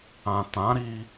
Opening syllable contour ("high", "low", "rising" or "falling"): low